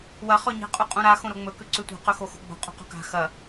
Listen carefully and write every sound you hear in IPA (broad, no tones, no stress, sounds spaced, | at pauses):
w ɐ χ ɵ ɲ e̤ qʼ u qʼ ũ ɾ a x õ ɾ o ŋ͡m ɵ k ʉ ǀ ʉ tʷ a̤ q ɵ x o x o̤ ɡ͡b o̤ qʼ ṳ q o̤ k a̤ x ɐ